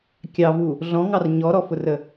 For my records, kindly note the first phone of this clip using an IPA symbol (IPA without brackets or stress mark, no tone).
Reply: kʲ